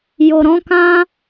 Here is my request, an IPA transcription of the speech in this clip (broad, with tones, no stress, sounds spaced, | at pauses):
j o˨ ɾ ɔ̃˨˦ k ã˦